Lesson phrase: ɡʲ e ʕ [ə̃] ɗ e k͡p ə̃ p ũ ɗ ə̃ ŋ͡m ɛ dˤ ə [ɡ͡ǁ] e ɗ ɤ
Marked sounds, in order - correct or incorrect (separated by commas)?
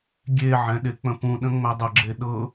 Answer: incorrect, correct